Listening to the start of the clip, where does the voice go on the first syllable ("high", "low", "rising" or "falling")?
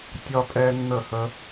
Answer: high